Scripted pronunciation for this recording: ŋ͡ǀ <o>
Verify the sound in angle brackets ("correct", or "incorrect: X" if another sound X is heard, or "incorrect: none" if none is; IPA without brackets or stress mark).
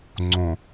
incorrect: õ